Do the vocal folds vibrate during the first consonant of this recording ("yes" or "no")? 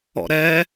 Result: yes